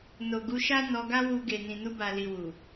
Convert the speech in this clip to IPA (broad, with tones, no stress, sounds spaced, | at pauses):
n o˨ ɡ u˨˦ ʃ a˦ n ɔ˧ ɡ a˦ w u˧ ɡ e˨ n ĩ˨ n u˧ b a˨ l i˨ w u˨